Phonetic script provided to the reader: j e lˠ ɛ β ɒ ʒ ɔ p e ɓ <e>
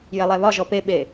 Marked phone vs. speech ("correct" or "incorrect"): correct